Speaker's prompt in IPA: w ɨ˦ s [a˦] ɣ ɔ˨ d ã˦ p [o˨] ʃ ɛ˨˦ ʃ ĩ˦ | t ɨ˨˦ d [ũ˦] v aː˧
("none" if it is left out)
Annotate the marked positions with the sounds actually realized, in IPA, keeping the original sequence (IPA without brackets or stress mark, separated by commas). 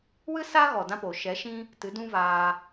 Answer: a˦, o˨, ũ˦